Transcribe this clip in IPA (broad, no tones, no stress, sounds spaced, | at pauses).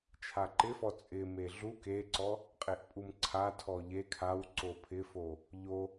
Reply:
t͡ʃʰ a ǃ ɪ f ɔ t͡sʼ ɪ m e ɮ u k e ǀ ɔ | qʼ e ʔ pʼ u m ǀʰ a tʰ ɔ ʎ e kʰ a w ǀ o pʰ ɪ f o | ʎ o